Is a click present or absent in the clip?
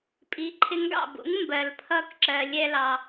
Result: present